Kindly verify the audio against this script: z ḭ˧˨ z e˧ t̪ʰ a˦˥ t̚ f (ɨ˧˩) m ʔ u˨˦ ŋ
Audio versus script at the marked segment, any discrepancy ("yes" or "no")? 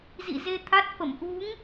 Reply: yes